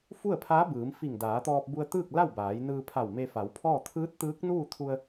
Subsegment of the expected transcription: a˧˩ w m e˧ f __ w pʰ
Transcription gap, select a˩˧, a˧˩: a˩˧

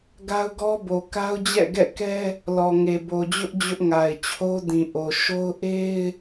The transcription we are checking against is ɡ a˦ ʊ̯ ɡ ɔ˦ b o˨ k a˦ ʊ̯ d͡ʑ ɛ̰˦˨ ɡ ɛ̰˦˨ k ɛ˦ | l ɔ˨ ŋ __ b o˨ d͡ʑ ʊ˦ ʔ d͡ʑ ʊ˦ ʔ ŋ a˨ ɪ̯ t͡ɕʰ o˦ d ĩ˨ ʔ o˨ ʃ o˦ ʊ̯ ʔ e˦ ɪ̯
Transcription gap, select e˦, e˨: e˨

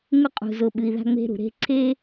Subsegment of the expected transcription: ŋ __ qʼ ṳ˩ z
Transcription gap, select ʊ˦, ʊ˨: ʊ˦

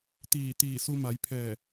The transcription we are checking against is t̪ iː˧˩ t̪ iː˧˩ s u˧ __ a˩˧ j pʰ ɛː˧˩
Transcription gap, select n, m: m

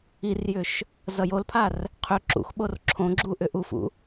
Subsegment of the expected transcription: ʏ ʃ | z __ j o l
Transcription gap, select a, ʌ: ʌ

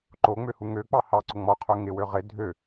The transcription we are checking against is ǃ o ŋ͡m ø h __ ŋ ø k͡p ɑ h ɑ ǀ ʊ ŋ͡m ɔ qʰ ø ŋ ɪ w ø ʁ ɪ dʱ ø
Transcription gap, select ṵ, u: u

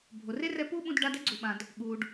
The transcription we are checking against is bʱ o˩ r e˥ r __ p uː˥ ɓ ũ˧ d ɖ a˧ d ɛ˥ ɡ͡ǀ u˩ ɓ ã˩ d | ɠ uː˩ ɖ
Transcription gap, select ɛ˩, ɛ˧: ɛ˧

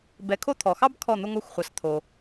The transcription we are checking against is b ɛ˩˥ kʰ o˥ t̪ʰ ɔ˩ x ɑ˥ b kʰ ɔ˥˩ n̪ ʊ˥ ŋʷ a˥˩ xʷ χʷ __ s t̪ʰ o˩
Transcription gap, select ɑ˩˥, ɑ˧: ɑ˩˥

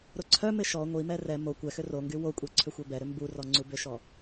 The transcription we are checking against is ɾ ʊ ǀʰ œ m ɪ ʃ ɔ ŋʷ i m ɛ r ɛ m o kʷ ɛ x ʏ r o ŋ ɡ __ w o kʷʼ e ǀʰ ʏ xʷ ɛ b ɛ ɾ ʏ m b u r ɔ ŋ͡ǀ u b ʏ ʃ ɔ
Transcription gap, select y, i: y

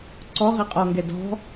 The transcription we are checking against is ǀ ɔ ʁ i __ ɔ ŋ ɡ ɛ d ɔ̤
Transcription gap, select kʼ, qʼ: qʼ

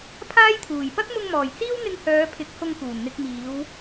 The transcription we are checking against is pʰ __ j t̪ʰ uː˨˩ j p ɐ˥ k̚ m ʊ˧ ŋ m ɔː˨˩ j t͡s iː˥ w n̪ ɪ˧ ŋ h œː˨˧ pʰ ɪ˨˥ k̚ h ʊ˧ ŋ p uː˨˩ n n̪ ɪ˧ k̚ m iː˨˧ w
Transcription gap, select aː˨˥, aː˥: aː˥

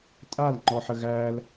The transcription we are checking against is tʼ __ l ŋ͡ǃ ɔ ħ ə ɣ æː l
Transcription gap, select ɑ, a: a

